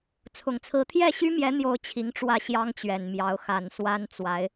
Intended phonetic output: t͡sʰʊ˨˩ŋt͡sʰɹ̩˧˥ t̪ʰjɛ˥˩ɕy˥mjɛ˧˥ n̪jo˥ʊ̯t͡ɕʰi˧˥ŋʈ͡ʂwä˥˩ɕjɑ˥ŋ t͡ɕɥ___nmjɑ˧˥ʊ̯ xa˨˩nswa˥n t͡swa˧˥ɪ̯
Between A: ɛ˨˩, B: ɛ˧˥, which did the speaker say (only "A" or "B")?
A